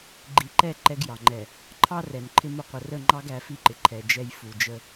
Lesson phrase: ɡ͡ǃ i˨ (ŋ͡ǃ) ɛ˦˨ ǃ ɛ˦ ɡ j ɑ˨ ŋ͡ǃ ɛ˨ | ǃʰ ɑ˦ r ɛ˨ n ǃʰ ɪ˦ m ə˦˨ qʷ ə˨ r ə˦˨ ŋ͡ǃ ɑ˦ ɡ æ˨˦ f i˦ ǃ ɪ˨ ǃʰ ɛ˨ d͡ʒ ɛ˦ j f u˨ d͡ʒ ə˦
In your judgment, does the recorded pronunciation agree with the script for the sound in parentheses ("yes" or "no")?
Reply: no